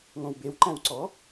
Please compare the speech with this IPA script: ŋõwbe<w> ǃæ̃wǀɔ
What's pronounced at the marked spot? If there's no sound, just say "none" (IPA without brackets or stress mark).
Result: w